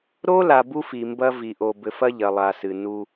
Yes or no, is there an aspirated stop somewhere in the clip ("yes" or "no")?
no